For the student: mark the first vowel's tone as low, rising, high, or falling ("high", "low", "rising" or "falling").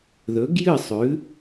rising